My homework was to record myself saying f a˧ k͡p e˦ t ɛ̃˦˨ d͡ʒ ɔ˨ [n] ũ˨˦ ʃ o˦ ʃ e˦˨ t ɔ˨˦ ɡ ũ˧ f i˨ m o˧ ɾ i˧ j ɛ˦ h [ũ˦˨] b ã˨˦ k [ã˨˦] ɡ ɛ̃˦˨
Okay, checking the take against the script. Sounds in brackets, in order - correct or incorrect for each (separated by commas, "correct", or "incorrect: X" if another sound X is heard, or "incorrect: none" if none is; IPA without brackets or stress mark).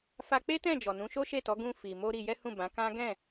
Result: correct, correct, incorrect: ã˦